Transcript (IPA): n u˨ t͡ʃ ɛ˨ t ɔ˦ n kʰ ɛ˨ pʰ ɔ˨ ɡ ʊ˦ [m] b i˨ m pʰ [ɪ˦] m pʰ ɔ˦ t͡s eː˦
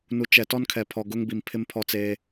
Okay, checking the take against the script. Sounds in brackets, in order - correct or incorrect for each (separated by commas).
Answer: incorrect, correct